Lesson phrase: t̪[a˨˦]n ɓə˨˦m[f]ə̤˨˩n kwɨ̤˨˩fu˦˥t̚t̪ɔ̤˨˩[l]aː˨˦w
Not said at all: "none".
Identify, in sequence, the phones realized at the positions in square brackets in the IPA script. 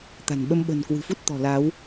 a̤˨˩, ɓ, l

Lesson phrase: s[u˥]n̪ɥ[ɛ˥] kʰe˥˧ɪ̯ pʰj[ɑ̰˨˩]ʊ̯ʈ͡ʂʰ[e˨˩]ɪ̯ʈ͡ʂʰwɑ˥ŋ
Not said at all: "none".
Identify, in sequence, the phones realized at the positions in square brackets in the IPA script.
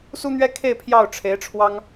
u˥, ɛ˥, ɑ˥˩, e˧˥

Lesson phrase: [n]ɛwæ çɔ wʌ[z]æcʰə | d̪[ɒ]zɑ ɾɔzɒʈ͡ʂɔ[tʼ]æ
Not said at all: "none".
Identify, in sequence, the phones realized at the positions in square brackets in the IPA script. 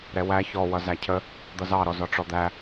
ɾ, z, ʌ, d̪

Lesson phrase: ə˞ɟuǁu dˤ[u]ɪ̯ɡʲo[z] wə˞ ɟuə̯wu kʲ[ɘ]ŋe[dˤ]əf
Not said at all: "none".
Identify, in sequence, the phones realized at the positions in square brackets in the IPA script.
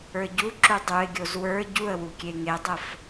u, z, e, dˤ

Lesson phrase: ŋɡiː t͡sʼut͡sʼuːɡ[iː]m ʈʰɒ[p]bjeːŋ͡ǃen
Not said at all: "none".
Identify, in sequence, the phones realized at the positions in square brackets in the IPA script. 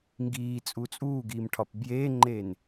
iː, p

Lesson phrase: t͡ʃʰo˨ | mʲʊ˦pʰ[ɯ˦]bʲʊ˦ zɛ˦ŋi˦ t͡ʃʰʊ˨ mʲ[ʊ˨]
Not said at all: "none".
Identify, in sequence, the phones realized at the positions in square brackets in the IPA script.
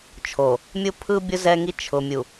ɯ˦, u˨

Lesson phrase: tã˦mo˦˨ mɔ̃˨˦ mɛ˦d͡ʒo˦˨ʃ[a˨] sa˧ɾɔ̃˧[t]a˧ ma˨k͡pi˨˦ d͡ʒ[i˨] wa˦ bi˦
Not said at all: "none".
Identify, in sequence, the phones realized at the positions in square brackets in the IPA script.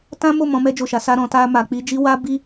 a˨˦, t, i˦

